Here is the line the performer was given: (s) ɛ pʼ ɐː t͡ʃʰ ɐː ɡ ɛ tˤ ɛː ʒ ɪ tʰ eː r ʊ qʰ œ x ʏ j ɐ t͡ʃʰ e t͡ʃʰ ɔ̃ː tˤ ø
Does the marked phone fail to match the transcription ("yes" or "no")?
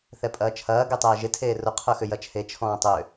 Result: yes